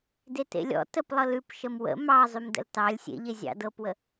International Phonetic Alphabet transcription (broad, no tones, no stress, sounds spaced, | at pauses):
d e t ḛ lʲ ɔ̰ t ə p lˠ ɤ l ʉ p ʃ ə m w ə̰ m ɑ zˤ y m d ə̰ l t ɑ lʲ sʲ ḛ ʎ e zʲ ɑ̰ d ɤ p w ə